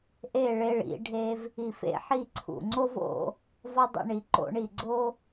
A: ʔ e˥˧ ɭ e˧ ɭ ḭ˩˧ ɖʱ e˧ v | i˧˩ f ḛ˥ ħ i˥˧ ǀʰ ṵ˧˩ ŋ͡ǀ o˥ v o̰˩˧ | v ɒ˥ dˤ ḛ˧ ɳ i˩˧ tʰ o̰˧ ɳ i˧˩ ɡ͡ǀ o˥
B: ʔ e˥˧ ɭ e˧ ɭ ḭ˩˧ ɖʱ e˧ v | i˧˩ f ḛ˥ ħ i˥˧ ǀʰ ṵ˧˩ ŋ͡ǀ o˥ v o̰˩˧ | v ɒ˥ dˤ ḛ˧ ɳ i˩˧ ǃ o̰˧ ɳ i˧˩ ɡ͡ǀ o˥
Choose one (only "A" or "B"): B